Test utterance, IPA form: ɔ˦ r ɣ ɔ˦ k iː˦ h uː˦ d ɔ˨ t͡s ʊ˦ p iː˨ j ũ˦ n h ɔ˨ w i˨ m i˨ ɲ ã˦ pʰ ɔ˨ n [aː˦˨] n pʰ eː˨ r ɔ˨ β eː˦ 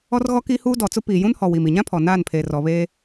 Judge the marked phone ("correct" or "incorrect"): correct